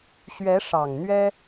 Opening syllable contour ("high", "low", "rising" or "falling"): rising